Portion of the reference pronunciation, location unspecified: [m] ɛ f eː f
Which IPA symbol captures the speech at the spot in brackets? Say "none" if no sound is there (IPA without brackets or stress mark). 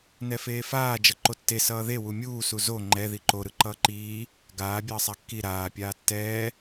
n